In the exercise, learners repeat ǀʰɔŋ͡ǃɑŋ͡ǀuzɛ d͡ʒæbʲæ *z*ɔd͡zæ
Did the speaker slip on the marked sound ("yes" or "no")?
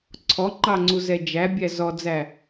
no